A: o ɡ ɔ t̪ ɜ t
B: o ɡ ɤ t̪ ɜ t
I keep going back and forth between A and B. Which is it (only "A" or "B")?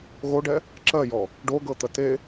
B